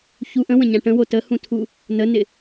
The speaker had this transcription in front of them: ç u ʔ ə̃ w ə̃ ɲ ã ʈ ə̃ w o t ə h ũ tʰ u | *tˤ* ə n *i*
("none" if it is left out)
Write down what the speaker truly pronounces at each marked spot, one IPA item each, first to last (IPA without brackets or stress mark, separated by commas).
n, ɪ